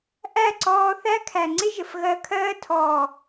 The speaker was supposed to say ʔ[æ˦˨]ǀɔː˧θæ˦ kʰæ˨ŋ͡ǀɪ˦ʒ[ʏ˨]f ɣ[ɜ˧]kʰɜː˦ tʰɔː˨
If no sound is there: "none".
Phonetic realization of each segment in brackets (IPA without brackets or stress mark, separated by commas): æ˦˨, ə˨, ɜ˧